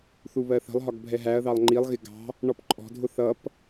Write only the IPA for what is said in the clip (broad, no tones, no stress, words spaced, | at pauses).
θuβɜθə̤lˠɦɒɡ bʱɛɦæɐ̯ðɑlˠ ŋ͡ǃilˠɣɪ ɡɑ̤ | ɳɔpǃʼɔ̤dʱʊ θʌp